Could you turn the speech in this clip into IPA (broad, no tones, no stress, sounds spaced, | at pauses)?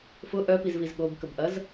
f ʊ ʔ œ p i z v i z ɠ o b k ə b ʔ ɐ z